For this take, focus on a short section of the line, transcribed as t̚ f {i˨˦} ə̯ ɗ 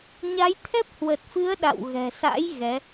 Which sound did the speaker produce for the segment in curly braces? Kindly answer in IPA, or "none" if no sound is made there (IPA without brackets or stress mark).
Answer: ɨ˨˦